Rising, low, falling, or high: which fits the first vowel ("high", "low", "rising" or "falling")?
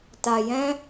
low